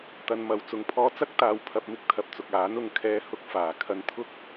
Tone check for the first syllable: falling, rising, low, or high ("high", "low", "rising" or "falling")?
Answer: low